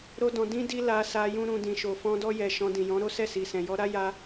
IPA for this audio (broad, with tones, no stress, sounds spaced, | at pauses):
ɾ o˦ d ɔ̃˧ d ĩ˦ d i˦ l a˧ s a˧ j ũ˦ ɾ ũ˧ d ĩ˨ ʃ o˨ f ɔ̃˧ d ɔ˧ j ɛ˨ ʃ ɔ̃˧ d ĩ˨ j ɔ̃˨˦ ɾ o˦ s ɛ˦˨ s i˨ s ɛ̃˨ j ɔ˧ ɾ a˦ j a˧